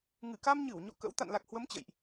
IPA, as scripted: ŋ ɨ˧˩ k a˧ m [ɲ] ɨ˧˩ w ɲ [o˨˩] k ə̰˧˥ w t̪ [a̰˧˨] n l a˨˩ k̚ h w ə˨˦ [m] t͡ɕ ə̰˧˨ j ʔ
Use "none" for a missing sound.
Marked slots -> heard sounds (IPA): ɲ, o̰˧˨, a̰˧˨, m

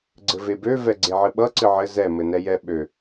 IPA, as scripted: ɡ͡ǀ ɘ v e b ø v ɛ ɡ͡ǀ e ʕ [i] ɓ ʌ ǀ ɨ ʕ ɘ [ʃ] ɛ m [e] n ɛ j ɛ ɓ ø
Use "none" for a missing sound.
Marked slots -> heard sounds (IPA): ɨ, z, ɘ

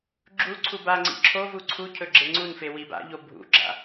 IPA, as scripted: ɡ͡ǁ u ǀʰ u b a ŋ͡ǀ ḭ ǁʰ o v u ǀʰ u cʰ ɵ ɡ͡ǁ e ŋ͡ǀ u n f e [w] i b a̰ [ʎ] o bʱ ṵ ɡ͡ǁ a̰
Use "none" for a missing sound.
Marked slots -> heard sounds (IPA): w, ʎ

